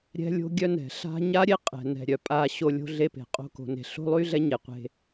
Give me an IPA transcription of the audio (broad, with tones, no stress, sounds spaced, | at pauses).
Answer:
ɾʲ ɛ̤˦ lʲ o̤˦ ɡʲ œ˦ n ɛ̤˨ ɬ a̤˦ ɲ a˦ ɾʲ e˦ qʼ ɛ̤˨ n ɛ̤˨ ɾʲ œ˨ pʼ a˦ ɕ o˦ lʲ o̤˦ ɮ e˦ p e̤˨ qʼ o̤˦ k o̤˨ n e̤˨ ɬ o̤˦ lˠ y˦ ɮ ɛ˦ ɲ e˨ qʷ e̤˦